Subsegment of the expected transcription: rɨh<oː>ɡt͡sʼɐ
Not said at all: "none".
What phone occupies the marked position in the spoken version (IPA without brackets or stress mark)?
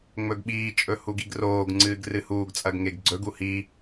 uː